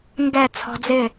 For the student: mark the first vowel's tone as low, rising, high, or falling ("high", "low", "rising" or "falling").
falling